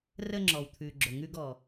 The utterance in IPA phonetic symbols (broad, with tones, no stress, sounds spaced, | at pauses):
r əː˧ ŋ͡ǁ ɔː˩ w t̪ʰ ʉː˩ ɡ͡ǁ o˩ ŋ ʉː˧ ɡ ɔː˩